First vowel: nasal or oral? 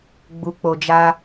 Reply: oral